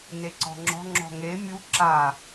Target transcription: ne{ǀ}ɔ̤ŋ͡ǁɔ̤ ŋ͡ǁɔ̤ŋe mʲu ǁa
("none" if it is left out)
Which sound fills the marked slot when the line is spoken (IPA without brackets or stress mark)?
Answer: ǀ